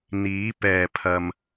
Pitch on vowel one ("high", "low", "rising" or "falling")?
rising